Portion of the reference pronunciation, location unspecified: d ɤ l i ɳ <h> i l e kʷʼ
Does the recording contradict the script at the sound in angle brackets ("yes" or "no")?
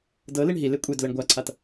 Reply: yes